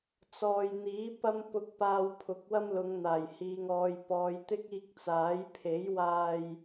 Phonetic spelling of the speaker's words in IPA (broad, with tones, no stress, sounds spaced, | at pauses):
t͡s ɔː˨ j n̪ iː˨˥ p ɐ˧ m p ʊ˨˥ k̚ p aː˨ w pʰ ʊ˨˥ k̚ w ɐ˥ m l ʊ˨˧ ŋ n̪ aː˨˩ j h iː˨ ŋ ɔː˨ j p ɔː˨˧ j t̪ ɪ˥ k̚ iː˧ k̚ t͡s aː˨˥ j pʰ e˨˥ j w aː˧ j